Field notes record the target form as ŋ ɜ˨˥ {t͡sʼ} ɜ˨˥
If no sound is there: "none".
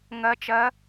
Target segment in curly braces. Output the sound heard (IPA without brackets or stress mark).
t͡ʃ